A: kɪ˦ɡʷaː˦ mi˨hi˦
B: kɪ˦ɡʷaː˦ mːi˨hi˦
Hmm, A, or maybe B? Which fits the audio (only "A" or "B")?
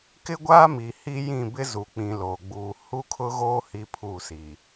A